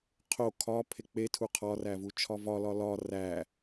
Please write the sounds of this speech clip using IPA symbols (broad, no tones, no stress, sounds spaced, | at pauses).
qʰ o kʰ ɒ pʰ e k͡p e tʰ u qʰ ɒ r æ v u t͡ʃʰ ɒ v ɒ l ɒ l ɒ r æ